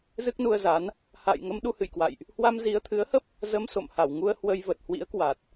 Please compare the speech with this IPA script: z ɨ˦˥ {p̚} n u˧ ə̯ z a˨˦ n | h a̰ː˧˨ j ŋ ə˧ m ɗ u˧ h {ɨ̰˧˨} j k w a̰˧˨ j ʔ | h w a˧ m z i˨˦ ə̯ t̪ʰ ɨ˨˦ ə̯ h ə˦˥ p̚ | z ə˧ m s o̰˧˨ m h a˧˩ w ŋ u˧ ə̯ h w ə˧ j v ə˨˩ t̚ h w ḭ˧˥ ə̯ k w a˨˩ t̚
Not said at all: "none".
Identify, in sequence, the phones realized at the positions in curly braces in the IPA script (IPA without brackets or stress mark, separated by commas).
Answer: k̚, ɨ̰˧˨